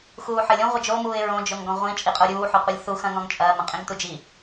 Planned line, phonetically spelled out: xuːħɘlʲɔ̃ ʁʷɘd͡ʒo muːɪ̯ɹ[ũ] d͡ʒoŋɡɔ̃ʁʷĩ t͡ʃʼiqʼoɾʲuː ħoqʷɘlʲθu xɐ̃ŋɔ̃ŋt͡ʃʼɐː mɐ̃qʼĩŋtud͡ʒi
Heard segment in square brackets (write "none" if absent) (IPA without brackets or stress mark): õ